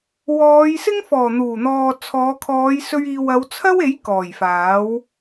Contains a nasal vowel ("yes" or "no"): no